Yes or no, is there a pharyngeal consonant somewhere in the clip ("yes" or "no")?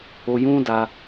no